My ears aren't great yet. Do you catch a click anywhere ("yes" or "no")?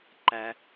yes